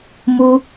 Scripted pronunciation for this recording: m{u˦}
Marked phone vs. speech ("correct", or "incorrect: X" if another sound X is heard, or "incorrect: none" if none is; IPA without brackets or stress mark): correct